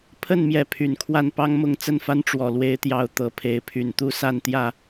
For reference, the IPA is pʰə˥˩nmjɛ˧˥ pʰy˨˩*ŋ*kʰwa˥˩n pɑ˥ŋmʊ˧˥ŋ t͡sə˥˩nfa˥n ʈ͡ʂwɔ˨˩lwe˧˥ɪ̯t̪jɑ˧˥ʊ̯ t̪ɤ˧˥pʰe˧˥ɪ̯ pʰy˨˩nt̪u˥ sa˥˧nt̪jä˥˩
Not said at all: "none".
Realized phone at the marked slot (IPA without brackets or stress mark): n